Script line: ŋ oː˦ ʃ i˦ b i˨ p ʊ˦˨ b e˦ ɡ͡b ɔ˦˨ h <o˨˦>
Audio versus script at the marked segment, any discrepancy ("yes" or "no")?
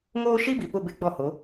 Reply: no